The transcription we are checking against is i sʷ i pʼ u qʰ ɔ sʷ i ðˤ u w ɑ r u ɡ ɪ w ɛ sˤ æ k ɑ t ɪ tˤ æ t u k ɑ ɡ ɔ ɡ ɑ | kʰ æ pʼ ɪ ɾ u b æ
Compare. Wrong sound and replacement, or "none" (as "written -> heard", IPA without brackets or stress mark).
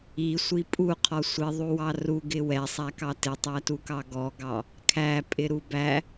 none